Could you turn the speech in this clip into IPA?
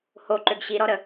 h o ǃ ø ɡ ɕ i ɾ ɔ ɾ ə

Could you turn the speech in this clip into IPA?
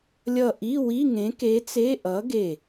lʲ ʌ˧˩ ʔ i˧˥˧ w i˧˥˧ ŋ ẽ˨˥ k e˨˥ t͡s e˧˥˧ ʔ ʌ˨˥ ɡ e˧˩

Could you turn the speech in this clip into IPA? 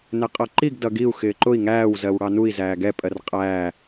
n ɛ qʼ ʌ ǃ i ɡ d ʌ ɡ i u̯ x ɪː ǃ ʊ i̯ ŋ æː w z ɜ w ɽ ɑ n u i̯ z æː ɡ ɛ pʼ ɜ r qʼ æː

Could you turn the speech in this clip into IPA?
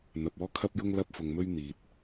n̪ ɐ˧ p̚ ɔː˥ kʰ ɐ˥ p̚ j ʊ˥ ŋ l ɐ˥ p̚ f ʊ˧ ŋ m ɵ˥ ɥ n̪ iː˧ t̚

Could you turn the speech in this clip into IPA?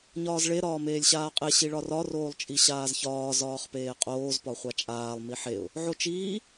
ɲ ɒː z ɭ e ɾ ɒː m eː lʲ ɕ aː qʼ e ɕ i ɭ ɒ r ɒ r oː lˠ t͡ʃʼ i ɕ aː z ç ɒː z ɒː χ p eː qʼ oː z p ɒ χʷ a t͡ʃʼ aː lˠ m i ħ e ʊ̯ | ʕ o t͡ʃ iː

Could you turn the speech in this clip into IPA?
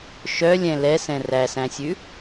ʃ œ lʲ ɛ̃ l ɛ s ɛ̃ r æ s æ̃ sʲ ʉ

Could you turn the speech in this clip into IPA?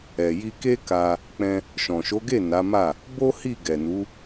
ɛ˨ j i˧ k e˦ k a˧ | k͡p ɛ̃˧ | ʃ ɔ̃˨ ʃ o˨˦ ɡ e˦˨ n a˨˦ m a˦˨ | b o˦ h i˦˨ ɡ ɛ˨ n u˨˦

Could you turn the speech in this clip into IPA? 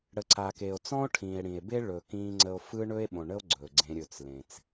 ɽ ə˨ ǀ a˨ k e˨ o̯ t͡s ɔ̃˦ o̯ ʈʰ ĩː˨ e̯ ɽ ĩ˨ e̯ b e˦ ɭ ɵ˨ k ĩː˦ ŋ͡ǀ ə˦ o̯ f ɯ˦ ɳ ɵ˦ e̯ ɓ õ˨ ɳ ə˦ o̯ ɡ͡ǀ ɵː˨ ɡ͡ǀ ẽ˦ ɾʲ ɵ˦ t͡s l ẽ˦ t͡s

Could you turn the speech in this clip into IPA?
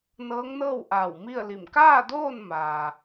n ɤː˧˥ ŋ n ɤː˥˨ w ʔ aː˧˩ w m i˥˨ ə̯ l i˧˩ m k aː˥˨ d oː˥˨ n m aː˩

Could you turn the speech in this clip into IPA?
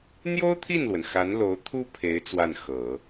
n̪ j o˥ ʊ̯ t̪ʰ i˥˩ n l w ə˩ n x a˧˥ n l o˧˥ ʊ̯ t̪ʰ u˥ pʰ e˧˥ ɪ̯ t͡s w a˥˩ n x ɤ˨˩˦

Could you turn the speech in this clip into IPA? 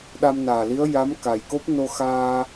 ɗ a˧ m n aː˨˩ l i˧˥ ə̯ j a˧˥ m k a˨˩ j k o˦˥ p̚ n o˧ x aː˧

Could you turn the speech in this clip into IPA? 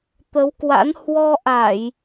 t̪ ə˨˦ w k w a̰˧˥ n h w ɔ˧ ʔ a˧˩˨ j

